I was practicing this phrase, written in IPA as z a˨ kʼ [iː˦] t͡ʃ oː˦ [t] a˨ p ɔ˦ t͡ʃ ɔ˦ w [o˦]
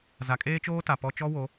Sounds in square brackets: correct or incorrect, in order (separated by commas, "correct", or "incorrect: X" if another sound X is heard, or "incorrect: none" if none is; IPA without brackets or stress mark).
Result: incorrect: eː˦, correct, incorrect: o˨˦